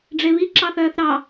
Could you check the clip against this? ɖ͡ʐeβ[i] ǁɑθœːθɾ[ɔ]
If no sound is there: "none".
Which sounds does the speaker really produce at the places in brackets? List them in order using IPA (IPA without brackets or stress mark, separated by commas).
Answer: i, ɑ